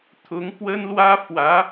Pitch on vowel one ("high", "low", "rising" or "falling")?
rising